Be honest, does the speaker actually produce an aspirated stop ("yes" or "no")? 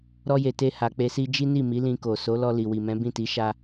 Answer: no